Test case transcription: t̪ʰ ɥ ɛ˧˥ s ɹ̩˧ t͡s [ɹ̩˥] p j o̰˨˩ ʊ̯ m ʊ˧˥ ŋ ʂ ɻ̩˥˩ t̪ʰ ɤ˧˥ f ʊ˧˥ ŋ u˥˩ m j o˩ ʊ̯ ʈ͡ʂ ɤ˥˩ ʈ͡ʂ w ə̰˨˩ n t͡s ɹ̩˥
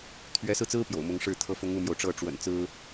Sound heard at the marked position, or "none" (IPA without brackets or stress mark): ɹ̩˥